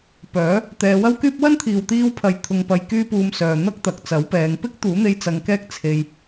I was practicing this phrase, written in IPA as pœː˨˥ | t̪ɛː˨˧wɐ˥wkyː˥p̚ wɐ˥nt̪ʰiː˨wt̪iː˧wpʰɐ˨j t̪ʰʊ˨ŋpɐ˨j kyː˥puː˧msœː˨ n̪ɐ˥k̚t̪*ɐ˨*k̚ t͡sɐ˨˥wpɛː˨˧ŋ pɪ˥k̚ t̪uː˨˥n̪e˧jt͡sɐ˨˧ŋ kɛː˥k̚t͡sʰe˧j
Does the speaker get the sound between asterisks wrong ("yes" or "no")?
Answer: no